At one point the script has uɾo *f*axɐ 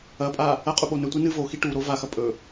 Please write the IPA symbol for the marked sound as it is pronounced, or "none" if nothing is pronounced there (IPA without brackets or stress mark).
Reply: v